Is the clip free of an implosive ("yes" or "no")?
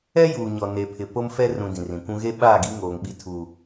no